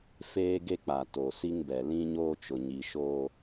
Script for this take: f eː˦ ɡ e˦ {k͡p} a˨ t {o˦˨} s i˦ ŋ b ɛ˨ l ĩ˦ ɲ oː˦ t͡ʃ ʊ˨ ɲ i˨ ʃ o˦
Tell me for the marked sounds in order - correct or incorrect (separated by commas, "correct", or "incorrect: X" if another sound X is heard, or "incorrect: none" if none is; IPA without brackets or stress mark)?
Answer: correct, incorrect: o˨